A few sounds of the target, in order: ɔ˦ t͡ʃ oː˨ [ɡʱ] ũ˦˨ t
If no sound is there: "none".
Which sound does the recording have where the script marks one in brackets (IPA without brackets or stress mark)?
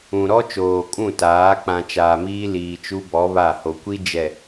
kʼ